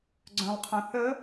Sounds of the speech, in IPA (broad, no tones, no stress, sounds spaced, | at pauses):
ɡ͡ǀ œ̃ lˠ qʰ õ θ ə